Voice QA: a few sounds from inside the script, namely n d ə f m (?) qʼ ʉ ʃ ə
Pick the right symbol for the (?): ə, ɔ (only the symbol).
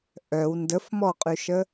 ɔ